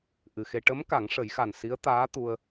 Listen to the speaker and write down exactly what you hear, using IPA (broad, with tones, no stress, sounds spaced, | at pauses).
ʔ ɨ˨˩ x e˧ ʈ ə˧˥ m k a˨˩˦ ŋ ʂ ə˨˩˦ j x a˨˩ n s i˧˥ ə̯ t̪ aː˧˥ t̪ u˧ ə̯